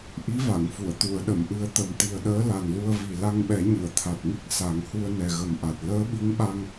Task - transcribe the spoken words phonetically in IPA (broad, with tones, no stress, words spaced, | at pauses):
ʔi˧˥va˨˩˨ŋfu˨˩˨ə̯ t̪u˨˩˨ə̯ɗə˨˩˨mʔɨ˨˩ə̯ t̪ə˨˩mt̪i˨˩ə̯ɗəː˧˥ la˨˩nlu˧ə̯vi˨˩ la˧ŋɓɛ˨˩˦ɲɨ˨˩˨ə̯ t̪ʰa˨˩t̚ŋi˦˥k̚ sa˨˩˦ŋhu˧ə̯ nɛ˨˩ɣə˨˩mʔa˨˩t̚ ləː˧˥ ɓi˧˥ŋɓa˧ŋ